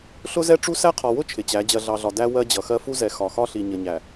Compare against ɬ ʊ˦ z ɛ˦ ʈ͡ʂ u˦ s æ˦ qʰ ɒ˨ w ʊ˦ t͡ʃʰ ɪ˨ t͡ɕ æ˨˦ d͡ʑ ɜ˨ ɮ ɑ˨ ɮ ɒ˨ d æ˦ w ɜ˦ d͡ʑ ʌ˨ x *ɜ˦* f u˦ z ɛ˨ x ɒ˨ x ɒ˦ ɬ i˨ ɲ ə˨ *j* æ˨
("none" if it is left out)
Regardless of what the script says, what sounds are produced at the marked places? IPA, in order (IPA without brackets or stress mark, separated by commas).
ɜ˦, ɲ